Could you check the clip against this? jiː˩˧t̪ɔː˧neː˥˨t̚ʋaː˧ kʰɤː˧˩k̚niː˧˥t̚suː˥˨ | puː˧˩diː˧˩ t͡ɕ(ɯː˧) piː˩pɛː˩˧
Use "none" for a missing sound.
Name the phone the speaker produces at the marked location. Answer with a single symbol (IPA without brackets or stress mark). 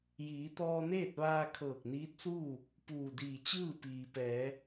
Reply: ɯː˥˨